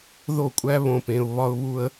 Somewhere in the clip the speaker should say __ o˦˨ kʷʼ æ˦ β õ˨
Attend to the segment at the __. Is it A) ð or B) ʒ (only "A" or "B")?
A